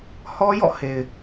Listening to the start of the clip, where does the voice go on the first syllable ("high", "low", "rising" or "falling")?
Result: high